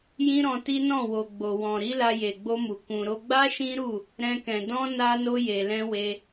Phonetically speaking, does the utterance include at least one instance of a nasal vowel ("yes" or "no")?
yes